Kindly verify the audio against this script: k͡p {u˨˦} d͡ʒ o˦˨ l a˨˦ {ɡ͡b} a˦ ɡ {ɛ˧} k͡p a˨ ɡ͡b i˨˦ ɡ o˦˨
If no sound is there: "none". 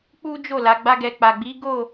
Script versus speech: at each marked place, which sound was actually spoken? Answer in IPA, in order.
u˦, ɡ͡b, ɛ˧

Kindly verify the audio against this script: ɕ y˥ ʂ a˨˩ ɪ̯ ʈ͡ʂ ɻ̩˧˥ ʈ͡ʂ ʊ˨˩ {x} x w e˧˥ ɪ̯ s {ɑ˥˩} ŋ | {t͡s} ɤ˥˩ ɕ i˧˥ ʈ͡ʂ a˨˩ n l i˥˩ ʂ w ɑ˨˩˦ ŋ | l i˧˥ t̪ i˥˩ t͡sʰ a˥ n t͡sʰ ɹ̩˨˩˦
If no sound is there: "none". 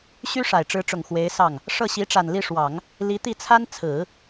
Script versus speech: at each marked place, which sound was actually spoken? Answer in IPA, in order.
ŋ, ɑ˥˩, ʂ

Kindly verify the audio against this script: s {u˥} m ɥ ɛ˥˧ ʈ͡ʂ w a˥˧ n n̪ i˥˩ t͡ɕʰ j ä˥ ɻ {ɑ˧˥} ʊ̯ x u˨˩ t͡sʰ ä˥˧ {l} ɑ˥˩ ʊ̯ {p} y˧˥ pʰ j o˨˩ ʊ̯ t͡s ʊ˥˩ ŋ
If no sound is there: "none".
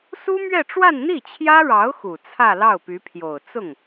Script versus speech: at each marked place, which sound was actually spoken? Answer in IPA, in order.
u˥, ɑ˧˥, l, p

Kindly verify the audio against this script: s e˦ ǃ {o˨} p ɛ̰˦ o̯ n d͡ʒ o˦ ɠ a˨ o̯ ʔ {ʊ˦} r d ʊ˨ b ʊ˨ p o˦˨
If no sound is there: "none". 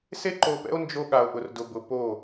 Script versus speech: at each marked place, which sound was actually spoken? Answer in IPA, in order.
o˨, ʊ˨

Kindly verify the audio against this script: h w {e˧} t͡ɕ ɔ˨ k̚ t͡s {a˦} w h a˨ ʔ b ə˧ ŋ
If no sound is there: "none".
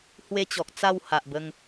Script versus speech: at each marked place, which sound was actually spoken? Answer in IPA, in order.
e˦, a˥˧

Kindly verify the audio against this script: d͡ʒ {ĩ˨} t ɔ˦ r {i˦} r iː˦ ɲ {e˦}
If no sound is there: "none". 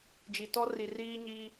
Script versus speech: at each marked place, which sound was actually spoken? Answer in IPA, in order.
i˨, i˨, i˦

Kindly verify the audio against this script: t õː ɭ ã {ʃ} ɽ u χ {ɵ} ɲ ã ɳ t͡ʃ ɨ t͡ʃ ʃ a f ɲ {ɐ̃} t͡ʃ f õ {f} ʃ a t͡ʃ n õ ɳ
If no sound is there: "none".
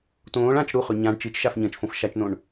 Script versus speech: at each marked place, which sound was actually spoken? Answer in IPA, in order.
t͡ʃ, ɵ, ɐ̃, f

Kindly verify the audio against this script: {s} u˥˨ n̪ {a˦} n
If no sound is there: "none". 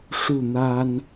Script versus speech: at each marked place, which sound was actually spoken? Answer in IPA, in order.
ʂ, a˦

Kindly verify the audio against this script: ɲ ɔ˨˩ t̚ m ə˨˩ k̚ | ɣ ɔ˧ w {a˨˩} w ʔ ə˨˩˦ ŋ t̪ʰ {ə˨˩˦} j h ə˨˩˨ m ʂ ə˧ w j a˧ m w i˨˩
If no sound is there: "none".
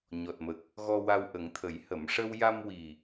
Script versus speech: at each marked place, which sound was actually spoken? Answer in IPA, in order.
a˧, ə˨˩˦

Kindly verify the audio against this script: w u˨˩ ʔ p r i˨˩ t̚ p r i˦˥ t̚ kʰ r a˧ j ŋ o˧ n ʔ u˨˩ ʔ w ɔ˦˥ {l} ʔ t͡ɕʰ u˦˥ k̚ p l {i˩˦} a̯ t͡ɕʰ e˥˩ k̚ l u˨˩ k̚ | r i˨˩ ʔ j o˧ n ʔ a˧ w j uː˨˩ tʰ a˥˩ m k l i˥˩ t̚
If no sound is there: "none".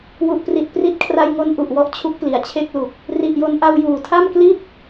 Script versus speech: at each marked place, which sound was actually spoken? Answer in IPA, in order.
none, i˩˦

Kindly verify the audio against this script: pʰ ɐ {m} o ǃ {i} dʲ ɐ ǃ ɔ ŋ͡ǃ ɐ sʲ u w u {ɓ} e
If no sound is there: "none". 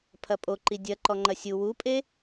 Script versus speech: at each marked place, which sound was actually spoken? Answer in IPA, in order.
pʼ, i, pʼ

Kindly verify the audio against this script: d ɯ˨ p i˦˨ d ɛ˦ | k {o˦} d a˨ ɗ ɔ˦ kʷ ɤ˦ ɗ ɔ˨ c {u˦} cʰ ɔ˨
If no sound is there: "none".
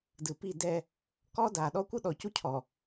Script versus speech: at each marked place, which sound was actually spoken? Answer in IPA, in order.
ɔ˦, u˦

